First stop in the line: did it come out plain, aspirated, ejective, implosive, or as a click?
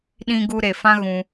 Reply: implosive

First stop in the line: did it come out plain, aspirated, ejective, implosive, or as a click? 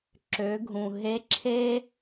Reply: click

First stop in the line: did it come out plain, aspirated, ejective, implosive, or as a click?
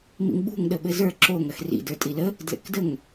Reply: implosive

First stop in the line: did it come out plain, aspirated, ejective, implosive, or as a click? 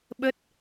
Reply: implosive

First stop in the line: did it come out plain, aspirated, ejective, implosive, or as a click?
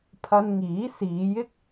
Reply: aspirated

